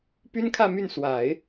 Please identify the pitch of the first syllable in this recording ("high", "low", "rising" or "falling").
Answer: high